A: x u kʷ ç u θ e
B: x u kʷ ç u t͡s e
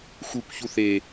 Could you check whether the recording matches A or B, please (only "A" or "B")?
A